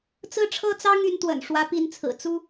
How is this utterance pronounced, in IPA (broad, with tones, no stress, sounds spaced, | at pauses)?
t͡s ɹ̩˥˩ ʈ͡ʂʰ ɤ˥ t͡s ɑ˥ ŋ y˧˥ n t̪ w ə̰˨˩ n ʂ w ä˧˥ p i˧˥ n t͡sʰ ɹ̩˨˩ t͡s u˥